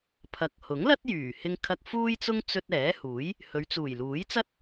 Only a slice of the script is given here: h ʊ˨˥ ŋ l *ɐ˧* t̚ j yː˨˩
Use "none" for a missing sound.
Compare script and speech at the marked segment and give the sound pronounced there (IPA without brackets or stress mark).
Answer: ɐ˥